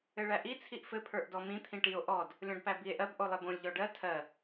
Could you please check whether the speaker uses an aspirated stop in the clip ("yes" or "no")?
yes